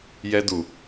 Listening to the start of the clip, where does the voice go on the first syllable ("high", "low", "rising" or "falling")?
high